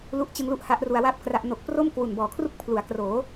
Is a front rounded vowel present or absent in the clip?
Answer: absent